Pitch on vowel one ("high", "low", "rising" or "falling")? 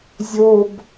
high